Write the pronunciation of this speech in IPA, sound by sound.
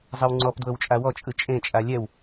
zˤ ɯ w ŋ͡ǀ ɔ p d w ɤ w t͡ʃʼ a w ɔ t͡ʃʼ ɯ t͡ʃʼ ẽ t͡ʃʼ a lʲ ɛ w

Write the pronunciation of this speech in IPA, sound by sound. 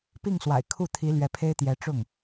p i˥˩ ŋ s w a̰˨˩ ɪ̯ kʰ u˥˩ t̪ʰ i˧˥ l ɥ ɛ˧˥ pʰ e˥ ɪ̯ t̪ j ɛ˧˥ ʈ͡ʂ ʊ˥˩ ŋ

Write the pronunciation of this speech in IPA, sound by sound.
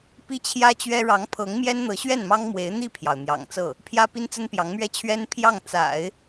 p i˥ t͡ɕʰ j ä˥ t͡ɕ ɥ ɛ˥ ɻ ɑ˧˥ ŋ pʰ ɤ˧˥ ŋ m j ɛ˥ n n̪ ɤ˧˥ ɕ ɥ ɛ˥˩ n m ɑ˥ ŋ m w e˧˥ ɪ̯ n̪ i˥˩ pʰ j ɑ˩ ʊ̯ n̪ j ɑ̰˨˩ ŋ t͡s ɤ˥˩ | pʰ j ä˥ p i˥ n t͡s ə˥ n p j ɑ˧˥ ŋ m ɥ ɛ˥ t͡ɕʰ ɥ ɛ˥ n pʰ j ɑ˥˩ ŋ t͡s a̰˨˩˦ ɪ̯

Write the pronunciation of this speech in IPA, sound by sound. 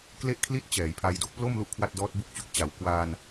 k l e˥˩ ʔ kʰ l i˥˩ t̚ t͡ɕ ɛː˩˦ j pʰ a˧ j d o˦˥ k̚ p l o˥˩ m l u˥˩ ʔ kʰ w a˥˩ t̚ d ɔː˦˥ t̚ b u˦˥ k̚ t͡ɕ u˨˩ k̚ t͡ɕ a˩˦ w k w aː˧ n

